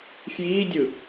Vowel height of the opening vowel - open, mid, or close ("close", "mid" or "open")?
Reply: close